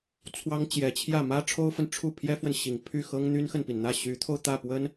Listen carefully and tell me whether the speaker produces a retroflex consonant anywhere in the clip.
yes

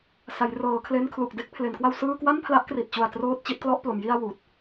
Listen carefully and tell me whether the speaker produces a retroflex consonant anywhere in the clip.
no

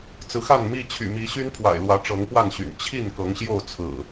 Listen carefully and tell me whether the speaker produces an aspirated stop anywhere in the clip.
yes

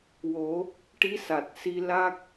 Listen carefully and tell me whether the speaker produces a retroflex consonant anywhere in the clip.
yes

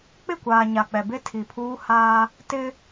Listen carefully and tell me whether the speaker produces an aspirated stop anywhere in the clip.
yes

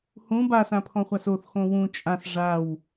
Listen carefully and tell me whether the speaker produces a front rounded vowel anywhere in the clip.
no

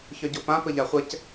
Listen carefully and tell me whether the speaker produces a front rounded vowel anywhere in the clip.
yes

